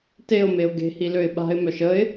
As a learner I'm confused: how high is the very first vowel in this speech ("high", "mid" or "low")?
mid